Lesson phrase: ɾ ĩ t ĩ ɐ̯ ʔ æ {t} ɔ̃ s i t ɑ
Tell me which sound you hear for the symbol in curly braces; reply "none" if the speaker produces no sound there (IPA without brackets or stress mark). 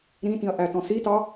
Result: t